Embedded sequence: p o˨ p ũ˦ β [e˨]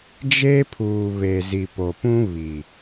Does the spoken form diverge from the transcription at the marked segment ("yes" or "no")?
yes